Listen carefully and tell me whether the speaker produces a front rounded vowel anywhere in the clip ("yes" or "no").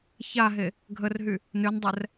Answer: yes